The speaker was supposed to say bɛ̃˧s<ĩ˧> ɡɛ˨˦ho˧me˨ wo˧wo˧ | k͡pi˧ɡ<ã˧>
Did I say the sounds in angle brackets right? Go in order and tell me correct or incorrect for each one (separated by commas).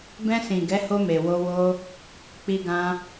incorrect, correct